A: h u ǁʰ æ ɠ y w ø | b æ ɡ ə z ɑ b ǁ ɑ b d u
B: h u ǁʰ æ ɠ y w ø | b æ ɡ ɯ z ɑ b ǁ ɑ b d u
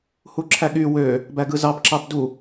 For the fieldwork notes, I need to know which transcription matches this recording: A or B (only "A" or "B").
B